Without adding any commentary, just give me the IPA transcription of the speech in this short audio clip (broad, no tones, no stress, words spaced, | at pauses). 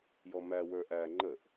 jɔmæ wə˞ʔæ ŋ͡ǃəʔ